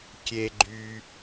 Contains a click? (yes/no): yes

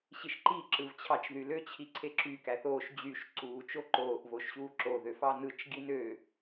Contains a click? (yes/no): yes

